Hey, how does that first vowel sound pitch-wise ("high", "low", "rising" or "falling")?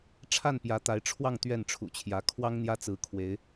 falling